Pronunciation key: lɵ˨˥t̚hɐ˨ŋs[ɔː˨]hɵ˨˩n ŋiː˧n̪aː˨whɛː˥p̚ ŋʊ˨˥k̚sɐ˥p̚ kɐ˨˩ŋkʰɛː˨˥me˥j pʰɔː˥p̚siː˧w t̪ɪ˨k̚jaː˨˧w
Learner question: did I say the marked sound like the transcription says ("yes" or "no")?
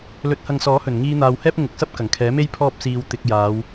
no